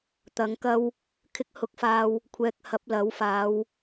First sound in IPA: t̪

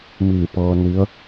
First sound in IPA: m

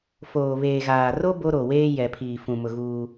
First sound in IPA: f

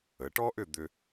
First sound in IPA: ə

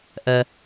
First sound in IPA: ʔ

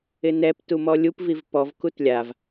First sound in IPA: ɪ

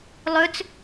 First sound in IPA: lˠ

